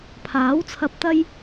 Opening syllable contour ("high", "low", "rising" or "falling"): rising